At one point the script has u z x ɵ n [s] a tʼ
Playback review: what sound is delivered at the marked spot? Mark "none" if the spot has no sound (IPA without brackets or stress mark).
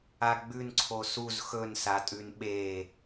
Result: s